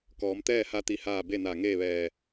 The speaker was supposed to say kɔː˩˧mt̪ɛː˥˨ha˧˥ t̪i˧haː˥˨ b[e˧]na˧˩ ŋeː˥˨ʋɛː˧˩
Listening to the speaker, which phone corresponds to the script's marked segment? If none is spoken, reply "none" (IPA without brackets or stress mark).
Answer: e˥˨